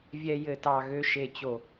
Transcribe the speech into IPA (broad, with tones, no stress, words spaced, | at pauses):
vʲɛ˦jɘ˦˨tɑ˦˨ ɣø˦ʃe˦˨t͡ɕo˦˨